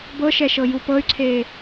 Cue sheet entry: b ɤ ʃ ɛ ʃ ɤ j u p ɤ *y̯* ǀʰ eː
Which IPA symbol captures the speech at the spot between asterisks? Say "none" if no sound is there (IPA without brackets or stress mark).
y̯